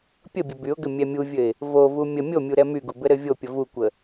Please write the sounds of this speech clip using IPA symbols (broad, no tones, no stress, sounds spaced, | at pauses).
pʲ ə bʲ ə b y ʊ̯ ɡ ɘ mʲ ɛ mʲ u vʲ ɘ ɪ̯ | v o v u mʲ ə mʲ o mʲ u ɾ ɛ m y ɡ u b ɘ ɾ ɘ vʲ o pʲ ə v u kʷ ə